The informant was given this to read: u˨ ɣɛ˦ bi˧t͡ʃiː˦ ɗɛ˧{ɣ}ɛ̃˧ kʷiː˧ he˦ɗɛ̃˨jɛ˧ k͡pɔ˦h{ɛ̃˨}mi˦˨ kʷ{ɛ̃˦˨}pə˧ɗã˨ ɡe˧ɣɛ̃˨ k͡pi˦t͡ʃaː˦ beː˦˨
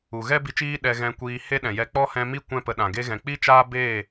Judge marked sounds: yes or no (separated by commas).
yes, no, yes